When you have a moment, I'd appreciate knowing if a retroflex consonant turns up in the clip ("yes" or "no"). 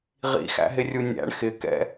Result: yes